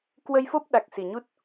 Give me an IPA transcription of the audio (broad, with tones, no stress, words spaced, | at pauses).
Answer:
kwə˧jfo˦˥p̚ ɗa˨˩k̚si˨˩ɲu˦˥t̚